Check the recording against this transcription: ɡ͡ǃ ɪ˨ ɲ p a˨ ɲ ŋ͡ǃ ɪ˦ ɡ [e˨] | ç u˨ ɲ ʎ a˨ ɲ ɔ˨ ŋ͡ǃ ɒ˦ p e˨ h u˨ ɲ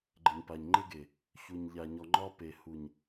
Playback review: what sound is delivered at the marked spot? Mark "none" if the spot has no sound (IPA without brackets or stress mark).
e˨